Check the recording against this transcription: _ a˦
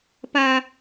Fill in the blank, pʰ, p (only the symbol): p